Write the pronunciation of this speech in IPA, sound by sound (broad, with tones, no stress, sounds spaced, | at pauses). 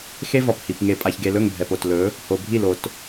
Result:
x e˦ v ɒ˨ p h i˨ p ŋ e˨ pʼ a˨ ç ɡ e˨ l ɵ˦˨ ŋ bʱ ɛ˨ p o˨ t l ɵ˨˦ | h o˨ bʱ i˦˨ l o˨ t